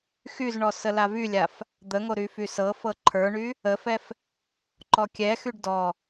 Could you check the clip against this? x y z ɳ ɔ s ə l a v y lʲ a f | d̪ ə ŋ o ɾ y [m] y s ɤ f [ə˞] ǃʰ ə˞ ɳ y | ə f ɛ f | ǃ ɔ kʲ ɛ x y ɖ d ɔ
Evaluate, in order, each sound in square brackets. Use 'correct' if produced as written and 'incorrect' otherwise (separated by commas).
incorrect, incorrect